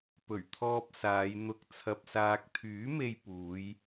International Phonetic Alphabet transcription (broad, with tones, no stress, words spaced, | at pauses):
pɵ˨˩ɥt̪ʰɔː˧p̚ saː˨˧jn̪ʊ˧k̚ t͡sʰɐ˨p̚saː˨k̚ t̪ʰyː˨˥ me˧j puː˨˧j